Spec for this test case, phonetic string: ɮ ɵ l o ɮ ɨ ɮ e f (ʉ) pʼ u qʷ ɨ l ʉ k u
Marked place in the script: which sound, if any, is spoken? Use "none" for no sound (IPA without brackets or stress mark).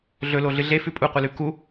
ʉ